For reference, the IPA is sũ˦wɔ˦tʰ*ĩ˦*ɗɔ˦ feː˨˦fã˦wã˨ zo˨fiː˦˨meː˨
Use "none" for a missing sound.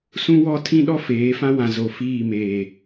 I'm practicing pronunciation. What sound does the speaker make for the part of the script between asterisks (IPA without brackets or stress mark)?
ĩ˦